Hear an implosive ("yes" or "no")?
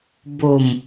no